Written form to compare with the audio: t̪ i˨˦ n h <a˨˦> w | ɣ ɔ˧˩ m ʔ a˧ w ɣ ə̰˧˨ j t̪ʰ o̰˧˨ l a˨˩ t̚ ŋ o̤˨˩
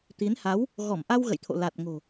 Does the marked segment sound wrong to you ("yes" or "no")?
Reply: no